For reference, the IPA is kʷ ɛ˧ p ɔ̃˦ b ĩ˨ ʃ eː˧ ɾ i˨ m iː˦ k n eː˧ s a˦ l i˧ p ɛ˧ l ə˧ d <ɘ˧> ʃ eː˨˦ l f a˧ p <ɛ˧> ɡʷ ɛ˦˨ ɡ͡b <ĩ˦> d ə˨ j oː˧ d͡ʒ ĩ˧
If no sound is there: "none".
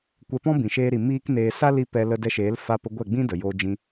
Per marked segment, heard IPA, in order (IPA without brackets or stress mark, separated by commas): ɛ˧, ə˧, ĩ˦